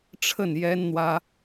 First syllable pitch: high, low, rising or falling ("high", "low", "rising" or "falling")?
falling